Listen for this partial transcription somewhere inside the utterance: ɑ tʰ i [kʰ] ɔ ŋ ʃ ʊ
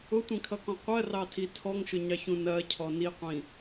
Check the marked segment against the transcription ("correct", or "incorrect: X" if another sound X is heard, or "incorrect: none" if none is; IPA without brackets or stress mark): incorrect: tʰ